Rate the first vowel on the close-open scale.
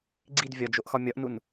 close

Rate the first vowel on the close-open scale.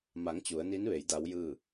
open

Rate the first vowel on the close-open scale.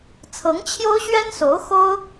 mid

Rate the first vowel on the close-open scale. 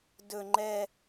mid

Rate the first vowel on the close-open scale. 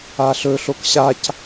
open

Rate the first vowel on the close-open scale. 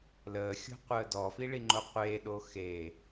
mid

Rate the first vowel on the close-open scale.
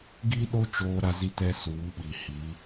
close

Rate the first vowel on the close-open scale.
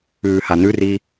close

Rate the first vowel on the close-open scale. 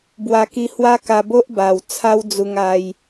open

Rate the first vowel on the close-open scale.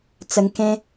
mid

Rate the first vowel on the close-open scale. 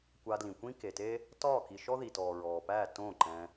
open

